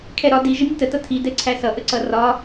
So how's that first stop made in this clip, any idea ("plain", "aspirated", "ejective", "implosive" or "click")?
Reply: aspirated